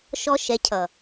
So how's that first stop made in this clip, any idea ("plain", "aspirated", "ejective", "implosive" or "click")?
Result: aspirated